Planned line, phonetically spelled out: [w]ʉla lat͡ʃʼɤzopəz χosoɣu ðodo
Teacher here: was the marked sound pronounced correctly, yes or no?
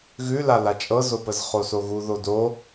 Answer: no